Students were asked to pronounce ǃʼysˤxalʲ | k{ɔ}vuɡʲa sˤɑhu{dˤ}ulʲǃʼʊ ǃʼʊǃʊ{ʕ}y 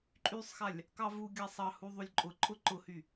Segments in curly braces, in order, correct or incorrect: incorrect, incorrect, incorrect

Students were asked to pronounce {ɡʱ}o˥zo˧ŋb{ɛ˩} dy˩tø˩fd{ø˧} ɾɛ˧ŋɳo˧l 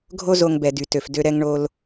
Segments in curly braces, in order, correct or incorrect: correct, correct, correct

